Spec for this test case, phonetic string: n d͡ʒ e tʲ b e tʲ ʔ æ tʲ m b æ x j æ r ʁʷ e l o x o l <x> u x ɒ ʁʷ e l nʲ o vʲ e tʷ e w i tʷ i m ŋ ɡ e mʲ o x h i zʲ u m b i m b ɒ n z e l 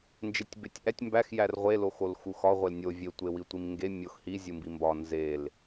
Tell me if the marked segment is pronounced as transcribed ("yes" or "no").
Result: yes